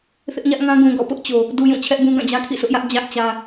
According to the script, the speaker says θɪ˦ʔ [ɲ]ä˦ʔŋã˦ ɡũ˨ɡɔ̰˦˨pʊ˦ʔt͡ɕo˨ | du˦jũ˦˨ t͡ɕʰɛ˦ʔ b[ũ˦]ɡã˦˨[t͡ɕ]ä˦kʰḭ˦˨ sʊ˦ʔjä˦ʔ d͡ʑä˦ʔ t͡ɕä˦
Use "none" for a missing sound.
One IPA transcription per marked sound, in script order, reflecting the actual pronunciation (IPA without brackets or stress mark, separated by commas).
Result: ɲ, ũ˦, d͡ʑ